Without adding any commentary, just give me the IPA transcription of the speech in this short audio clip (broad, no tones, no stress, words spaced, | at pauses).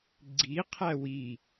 ɡ͡ǀi qʰæwi